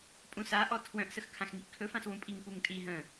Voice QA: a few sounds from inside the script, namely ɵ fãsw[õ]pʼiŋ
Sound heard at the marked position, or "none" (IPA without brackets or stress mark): ũ